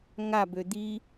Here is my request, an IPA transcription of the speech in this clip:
ŋ a b ø d̪ i

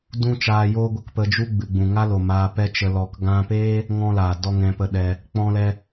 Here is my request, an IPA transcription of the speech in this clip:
d ũ˦ t͡ʃ aː˧ j oː˦ ɡʷ ə˦ k p ə˧ d͡ʒ u˦ ɡ͡b ɨ˨ ɡ͡b ũ˨ ŋ a˦ l o˨ m aː˧ p ɛ˦ t͡ʃ ə˧ l ɔ˧ k ɡ ã˧ p eː˦ | ŋ ɔ̃˦ l aː˨ d ɔ˦ ŋ ɛ̃˧ p ə˧ ɗ ɛ˧ | k͡p ɔ̃˦ l ɛ˦

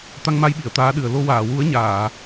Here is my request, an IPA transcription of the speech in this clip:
t̪ a˧ ŋ m a˧ j ɓ i˨˩˨ ə̯ t̪ aː˧˥ ɗ ɨ˨˩ ə̯ l o˧ w aː˨˩˨ w u˧˥ ə̯ ɲ aː˨˩˨

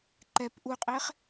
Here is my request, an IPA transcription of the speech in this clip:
ǃ ɛ p ʔ u qʼ e χ

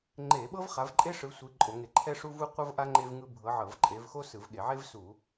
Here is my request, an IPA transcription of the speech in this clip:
ŋ͡ǃ e˧˩˧ ɓ ɤ˥ v χ a˨˦ v ǃʼ e˥ ʂ ɯ˨˦ sʷ i˨˦ ǃʼ o˧˩˧ ŋ e˧˩˧ ǃʰ ɛ˥ ʂ u˥ v u˥ qʷ ɤ˥ v ʔ a˥ ŋ͡ǃ e˥ v ŋ ɯ˥ bʱ ɤ˨˦ ʕ ɤ˧˩˧ v ǃʼ e˨˦ v x o˥ s ɯ˧˩˧ v ɠ e˧˩˧ ʕ e˥ v s u˧˩˧

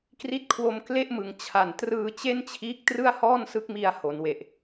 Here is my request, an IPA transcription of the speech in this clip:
k r i˦˥ t̚ kʰ w o˧ m k l e˥˩ ʔ m ɯ˨˩ ŋ t͡ɕʰ a˨˩ n t r ɯː˧ t͡ɕ e˥˩ n t͡ɕʰ iː˦˥ k̚ t r ɯ˥˩ a̯ h ɔː˥˩ n s ɯ˦˥ k̚ m i˧ a̯ h o˩˦ n w e˨˩ ʔ

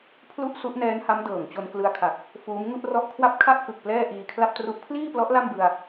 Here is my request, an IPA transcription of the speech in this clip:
pʰ l u˥˩ ʔ s u˦˥ ʔ n ɛː˦˥ n h a˦˥ m d ɤː˨˩ ŋ t͡ɕ o˧ n k l ɯ˧ a̯ kʰ a˨˩ k̚ | f uː˦˥ m ŋ u˥˩ ʔ r ɔ˦˥ ʔ kʰ w a˥˩ p̚ kʰ a˥˩ ʔ k ɯ˨˩ k̚ p l ɛː˥˩ ʔ iː˧ kʰ l a˥˩ p̚ t r u˦˥ ʔ pʰ l iː˥˩ p l ɔ˦˥ ʔ l a˥˩ m b ɯ˧ a̯

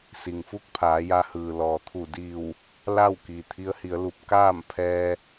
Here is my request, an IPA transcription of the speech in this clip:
s i˩ ŋ f u˥˨ k̚ pʰ aː˩˧ j a˧˥ h ɯː˩ l ɔː˩ t̪ʰ u˧˩ d iː˧˩ w | l a˥˨ w k i˩ t̪ʰ i˧˥ ə̯ h i˩˧ ə̯ l u˧ p̚ k aː˥˨ m pʰ ɛː˧

